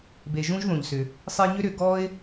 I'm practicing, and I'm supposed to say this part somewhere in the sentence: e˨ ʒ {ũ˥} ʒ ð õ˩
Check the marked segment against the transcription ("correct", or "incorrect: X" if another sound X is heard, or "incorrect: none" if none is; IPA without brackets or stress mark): correct